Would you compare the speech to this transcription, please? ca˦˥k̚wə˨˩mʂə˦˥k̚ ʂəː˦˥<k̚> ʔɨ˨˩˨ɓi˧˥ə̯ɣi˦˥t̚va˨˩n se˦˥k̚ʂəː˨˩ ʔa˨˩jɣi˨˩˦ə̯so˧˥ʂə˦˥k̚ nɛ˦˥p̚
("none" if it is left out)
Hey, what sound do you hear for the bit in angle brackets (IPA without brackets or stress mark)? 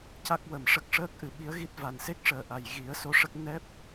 k̚